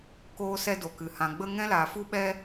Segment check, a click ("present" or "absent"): absent